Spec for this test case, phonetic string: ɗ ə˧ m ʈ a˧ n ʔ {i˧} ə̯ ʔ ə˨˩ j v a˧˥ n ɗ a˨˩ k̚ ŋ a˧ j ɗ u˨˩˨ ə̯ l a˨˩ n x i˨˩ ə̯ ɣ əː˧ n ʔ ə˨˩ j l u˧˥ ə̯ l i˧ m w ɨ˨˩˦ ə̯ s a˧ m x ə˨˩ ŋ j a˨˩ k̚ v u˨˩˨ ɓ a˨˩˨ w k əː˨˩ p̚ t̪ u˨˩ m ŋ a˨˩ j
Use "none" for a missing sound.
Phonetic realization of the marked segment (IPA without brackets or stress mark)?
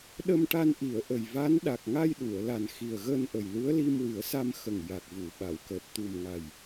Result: i˨˩˨